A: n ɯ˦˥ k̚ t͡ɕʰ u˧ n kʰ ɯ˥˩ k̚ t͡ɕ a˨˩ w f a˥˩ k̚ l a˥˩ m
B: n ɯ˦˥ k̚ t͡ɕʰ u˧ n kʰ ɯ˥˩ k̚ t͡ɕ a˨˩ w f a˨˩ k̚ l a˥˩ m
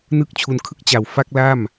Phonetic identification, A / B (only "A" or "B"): A